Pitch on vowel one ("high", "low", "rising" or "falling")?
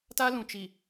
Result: high